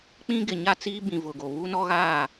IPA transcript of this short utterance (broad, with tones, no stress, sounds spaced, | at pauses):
k͡p ĩ˦ ɡ ɪ˨ ɲ a˦ t͡s iː˦ b ĩ˨ v ʊ˨ ɡ o˨ β u˦ n ɔ˦ ɣ aː˦˨